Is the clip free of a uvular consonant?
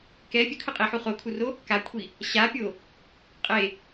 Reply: no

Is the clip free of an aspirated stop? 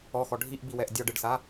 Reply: yes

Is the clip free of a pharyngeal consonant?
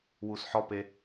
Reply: no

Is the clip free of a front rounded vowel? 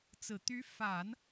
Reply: no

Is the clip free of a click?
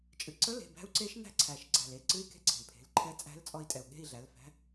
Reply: no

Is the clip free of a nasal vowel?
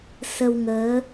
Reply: yes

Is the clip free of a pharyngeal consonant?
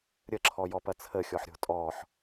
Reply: no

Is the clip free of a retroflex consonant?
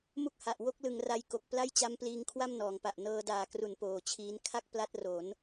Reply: yes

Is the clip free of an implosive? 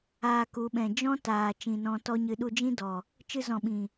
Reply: no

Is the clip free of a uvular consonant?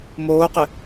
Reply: no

